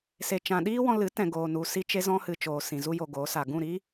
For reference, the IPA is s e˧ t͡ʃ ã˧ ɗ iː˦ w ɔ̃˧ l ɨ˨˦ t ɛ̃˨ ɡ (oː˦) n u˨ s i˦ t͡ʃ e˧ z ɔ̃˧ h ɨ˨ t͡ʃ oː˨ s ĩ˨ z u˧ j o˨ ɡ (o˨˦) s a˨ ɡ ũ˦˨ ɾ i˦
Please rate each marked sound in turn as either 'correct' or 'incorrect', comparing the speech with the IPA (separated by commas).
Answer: incorrect, correct